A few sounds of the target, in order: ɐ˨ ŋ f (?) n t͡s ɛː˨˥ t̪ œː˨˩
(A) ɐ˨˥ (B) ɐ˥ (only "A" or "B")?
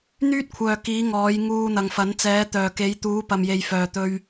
A